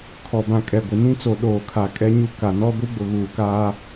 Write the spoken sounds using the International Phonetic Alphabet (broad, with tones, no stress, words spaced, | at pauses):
kʰɔ˨bã˨ kʼɛ˨ɡʷɪ˨nĩ˦ t͡so˨ɗoː˨kʰa˨ kʼɛ˦ɲu˦ ka˨nɔ˦ ɡʷi˦ɡ͡bʊ˨ɣuː˨kaː˦